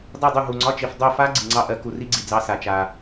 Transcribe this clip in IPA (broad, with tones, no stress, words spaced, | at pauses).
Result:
dˤu˦˨dˤu˦˨ ɦu˨ŋ͡ǀɒ˧˥˧t͡ʃi˨f dˤo˦˨fa˦˥ ɡ͡ǀi˨ŋ͡ǀɑ˦˥ʔɜ˨˥ ku˨ri˦˥ɡ͡ǀi˨ d͡zɑ˦˥ sa˨ t͡ʃa˨